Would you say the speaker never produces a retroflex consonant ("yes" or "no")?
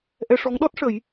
no